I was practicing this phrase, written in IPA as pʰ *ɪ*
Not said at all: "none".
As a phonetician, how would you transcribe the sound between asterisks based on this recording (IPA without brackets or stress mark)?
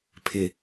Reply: ɪ